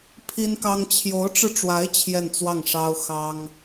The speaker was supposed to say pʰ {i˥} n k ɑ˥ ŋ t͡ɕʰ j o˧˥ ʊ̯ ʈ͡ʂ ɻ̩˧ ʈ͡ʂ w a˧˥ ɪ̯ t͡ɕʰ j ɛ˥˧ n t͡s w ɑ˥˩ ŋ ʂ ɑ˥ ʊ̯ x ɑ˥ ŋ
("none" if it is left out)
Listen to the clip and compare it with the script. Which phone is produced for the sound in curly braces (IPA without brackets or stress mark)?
i˥